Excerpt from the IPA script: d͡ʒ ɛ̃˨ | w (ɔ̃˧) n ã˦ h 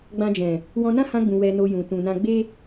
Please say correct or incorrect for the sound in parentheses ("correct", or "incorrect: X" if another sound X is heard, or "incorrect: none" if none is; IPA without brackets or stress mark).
correct